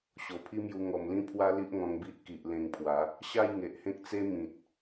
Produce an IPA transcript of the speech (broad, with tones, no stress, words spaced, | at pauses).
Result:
ɕo˨˩pʰi˦mju˧ ŋɔ˨˩mlĩ˦pʰwa˦ li˦ʔŋɔ̃˧ŋbi˦ʔki˨ʔ lẽ˧ŋpʰwa˨˦ | ɕa˥˧j ŋe˨ʔhẽ˦k̚t͡se˦ mĩ˨t̚